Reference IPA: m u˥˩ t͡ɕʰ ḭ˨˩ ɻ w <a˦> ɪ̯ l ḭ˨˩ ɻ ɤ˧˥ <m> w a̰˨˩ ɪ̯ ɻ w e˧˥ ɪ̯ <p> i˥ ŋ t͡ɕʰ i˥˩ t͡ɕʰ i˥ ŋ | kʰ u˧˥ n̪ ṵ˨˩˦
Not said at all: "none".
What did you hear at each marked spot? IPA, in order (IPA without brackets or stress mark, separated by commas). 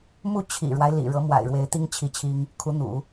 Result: a˦, m, t̪